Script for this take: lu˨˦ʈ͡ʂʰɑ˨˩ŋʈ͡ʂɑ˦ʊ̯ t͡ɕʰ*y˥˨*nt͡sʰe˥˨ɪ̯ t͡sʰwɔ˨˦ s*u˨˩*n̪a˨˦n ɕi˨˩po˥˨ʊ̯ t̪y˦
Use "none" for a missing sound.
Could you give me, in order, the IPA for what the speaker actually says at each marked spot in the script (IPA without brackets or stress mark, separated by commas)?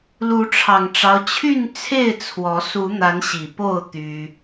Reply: y˥˨, u˨˦